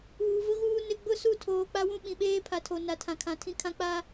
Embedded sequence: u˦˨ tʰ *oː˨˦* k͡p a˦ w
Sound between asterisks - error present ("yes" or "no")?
yes